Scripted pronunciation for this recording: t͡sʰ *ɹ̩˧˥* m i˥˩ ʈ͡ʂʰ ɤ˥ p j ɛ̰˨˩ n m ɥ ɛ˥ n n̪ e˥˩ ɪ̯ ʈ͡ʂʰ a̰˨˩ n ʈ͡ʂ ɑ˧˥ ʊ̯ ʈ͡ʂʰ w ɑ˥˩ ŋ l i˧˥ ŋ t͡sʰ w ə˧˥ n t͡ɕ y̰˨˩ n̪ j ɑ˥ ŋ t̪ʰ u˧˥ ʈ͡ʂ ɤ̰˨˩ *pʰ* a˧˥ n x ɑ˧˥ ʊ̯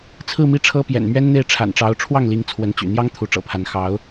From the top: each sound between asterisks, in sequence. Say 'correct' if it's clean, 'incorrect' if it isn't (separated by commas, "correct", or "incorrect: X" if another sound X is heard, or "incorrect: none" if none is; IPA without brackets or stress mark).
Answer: incorrect: ɹ̩˥˧, correct